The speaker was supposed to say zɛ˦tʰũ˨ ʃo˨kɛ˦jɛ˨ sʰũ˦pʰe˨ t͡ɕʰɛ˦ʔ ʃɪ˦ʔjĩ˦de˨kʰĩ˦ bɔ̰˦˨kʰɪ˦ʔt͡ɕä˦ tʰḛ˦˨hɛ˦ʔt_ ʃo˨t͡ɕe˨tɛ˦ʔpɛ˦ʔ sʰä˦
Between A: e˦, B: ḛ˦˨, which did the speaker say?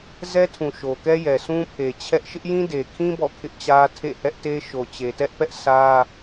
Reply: A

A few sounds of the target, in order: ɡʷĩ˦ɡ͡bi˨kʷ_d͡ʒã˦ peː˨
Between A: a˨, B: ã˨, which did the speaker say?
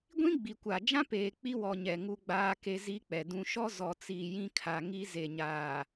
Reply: A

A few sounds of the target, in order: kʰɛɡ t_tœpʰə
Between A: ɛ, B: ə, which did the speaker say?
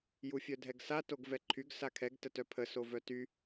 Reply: B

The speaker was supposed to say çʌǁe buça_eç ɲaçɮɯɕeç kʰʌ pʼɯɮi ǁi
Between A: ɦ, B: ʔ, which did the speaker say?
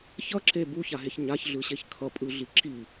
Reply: A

